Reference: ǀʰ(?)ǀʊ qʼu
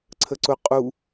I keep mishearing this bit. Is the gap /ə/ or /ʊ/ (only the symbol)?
ə